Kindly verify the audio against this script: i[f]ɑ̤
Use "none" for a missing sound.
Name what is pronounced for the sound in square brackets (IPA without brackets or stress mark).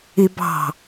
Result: b